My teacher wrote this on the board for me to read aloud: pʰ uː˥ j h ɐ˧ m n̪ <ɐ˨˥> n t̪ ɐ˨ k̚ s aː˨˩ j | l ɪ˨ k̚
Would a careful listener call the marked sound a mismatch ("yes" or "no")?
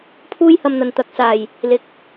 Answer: yes